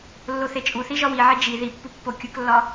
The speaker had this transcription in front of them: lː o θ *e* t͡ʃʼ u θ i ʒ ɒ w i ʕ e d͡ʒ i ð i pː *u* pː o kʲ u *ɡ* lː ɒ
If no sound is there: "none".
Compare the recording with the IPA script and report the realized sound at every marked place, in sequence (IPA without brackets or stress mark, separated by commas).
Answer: e, u, k